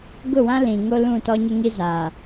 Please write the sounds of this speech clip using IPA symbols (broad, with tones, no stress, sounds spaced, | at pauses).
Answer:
ɡ ʊ˦˨ w ã˦ l ĩ˨ ŋ o˦ l ũ˦˨ t ɔ˦ ɲ ɪ˦ ŋ i˦ z aː˨